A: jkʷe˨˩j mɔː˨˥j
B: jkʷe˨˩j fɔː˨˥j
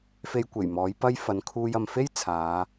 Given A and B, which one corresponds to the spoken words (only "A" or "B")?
A